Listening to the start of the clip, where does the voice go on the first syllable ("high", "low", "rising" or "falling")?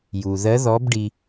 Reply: low